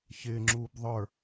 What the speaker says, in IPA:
ç ɪː ŋ͡ǁ uː b ðˤ ə˞

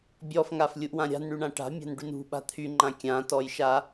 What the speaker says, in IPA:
bʲ ɔ f ŋ a f lʲ u ʔ w ã ɾʲ a̤ n ɳ y ɳ ã ʈ a̤ mʲ a̤ n ɖ y n ṳ ɓ a̤ t̪ʰ y ŋ͡ǃ ã kʲ ã t ɔ j ʃ a

